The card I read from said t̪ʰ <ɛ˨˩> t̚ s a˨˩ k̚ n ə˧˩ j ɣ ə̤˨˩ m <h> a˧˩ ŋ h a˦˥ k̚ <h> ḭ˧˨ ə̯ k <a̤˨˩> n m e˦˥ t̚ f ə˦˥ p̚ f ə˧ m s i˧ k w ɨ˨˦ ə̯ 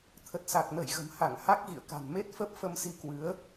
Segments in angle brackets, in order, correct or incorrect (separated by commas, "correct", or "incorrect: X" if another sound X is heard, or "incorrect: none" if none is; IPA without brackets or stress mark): incorrect: ə˨˩, correct, incorrect: ɣ, correct